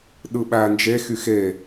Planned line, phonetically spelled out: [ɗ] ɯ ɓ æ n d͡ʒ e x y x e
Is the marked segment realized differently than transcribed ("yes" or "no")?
no